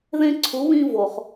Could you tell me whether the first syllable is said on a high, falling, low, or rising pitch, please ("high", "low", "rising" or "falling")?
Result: high